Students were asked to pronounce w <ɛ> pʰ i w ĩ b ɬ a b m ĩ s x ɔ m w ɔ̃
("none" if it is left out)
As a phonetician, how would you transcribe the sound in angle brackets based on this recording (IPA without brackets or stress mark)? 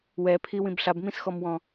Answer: ɛ